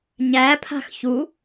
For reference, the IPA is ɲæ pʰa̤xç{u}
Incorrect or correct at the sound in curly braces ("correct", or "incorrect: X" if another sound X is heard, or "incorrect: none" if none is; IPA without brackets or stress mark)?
correct